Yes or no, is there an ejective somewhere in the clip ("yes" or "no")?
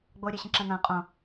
yes